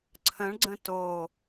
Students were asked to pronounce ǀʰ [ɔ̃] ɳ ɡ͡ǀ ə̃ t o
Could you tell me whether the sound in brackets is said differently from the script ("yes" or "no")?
yes